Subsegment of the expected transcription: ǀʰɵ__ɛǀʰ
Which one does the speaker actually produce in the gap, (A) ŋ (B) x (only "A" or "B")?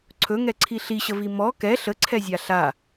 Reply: A